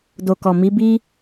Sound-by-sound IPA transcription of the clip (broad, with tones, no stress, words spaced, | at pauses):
do˨kɔ˨ mi˨˦ bi˦